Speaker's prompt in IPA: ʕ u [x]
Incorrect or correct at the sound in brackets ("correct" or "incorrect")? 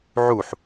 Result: incorrect